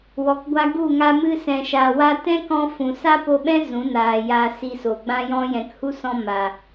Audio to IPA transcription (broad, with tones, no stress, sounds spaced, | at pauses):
w ɔ˨ k ɡʷ a˧ ɡ u˦˨ ŋ a˧ m ɨ˧ s ɛ̃˨ ʃ a˨ w a˧ t ɛ̃˦ k ɔ̃˧ f ũ˨ s a˦ p o˧ ɓ ɛ̃˦ z ũ˨˦ n aː˨ j a˧ s i˧ s o˨ ɡ͡b ã˦ j ɔ̃˦ j ɛ̃˨ k h u˦ s ɔ̃˧ m a˨